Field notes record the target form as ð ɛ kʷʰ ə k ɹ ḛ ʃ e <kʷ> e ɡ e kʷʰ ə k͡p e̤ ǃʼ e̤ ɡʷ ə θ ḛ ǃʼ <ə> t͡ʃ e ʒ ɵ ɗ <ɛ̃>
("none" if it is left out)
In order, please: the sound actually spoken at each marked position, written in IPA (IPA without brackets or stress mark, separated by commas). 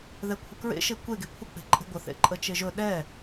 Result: kʷ, ə, ɛ